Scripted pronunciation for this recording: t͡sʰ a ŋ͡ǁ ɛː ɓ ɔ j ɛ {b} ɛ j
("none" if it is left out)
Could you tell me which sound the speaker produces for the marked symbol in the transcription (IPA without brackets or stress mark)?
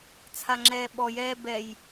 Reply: b